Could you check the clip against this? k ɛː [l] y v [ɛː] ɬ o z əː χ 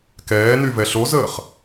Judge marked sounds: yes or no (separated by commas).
no, no